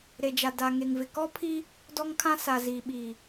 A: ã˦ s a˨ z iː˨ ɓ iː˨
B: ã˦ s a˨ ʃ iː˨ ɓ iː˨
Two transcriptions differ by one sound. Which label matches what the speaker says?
A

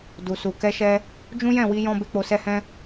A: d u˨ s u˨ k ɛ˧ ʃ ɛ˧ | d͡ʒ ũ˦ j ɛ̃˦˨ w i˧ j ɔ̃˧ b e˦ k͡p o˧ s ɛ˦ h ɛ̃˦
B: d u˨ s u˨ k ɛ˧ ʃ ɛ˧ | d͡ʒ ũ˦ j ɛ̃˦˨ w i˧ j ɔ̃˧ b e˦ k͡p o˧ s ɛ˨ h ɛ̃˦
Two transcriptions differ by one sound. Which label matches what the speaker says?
A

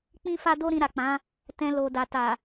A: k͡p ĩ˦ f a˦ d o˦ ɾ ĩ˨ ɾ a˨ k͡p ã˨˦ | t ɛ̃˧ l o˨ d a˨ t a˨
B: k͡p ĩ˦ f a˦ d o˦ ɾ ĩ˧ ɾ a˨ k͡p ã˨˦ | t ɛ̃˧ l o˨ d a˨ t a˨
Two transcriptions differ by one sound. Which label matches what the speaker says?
B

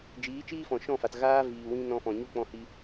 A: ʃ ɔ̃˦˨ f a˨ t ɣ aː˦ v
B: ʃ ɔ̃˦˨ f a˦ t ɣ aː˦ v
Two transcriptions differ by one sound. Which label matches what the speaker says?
A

